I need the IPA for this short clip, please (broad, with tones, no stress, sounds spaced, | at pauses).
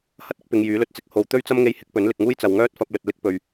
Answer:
h ɐ˥ t̚ ɪ˥ k̚ p ɪ˨˧ ŋ j yː˨˥ l ɵ˧ t̚ t͡s ɪ˧ k̚ h o˨ w t̪ ɵ˥ ɥ t͡s ɐ˥ m ŋ e˧ j h ɪ˨˥ k̚ p ɵ˨˥ n l ɪ˨ k̚ ŋ uː˥ j t͡s ɐ˨ w ŋ œː˥ t̚ f ɐ˧ p̚ l ɵ˨ t̚ l ɪ˥ k̚ p ɵ˨ ɥ